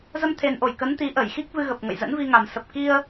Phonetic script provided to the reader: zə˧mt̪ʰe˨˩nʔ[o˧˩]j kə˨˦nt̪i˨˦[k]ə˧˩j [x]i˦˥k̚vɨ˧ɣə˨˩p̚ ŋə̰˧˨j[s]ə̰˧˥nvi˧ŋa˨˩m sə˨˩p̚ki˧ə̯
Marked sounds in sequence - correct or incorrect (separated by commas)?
correct, incorrect, correct, incorrect